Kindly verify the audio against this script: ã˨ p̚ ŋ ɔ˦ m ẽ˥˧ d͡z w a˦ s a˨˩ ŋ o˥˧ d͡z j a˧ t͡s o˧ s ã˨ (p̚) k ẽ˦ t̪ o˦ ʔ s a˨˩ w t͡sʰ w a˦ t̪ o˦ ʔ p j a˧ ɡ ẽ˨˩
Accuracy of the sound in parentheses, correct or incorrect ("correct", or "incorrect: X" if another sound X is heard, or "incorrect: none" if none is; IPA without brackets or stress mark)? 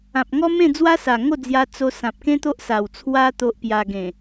correct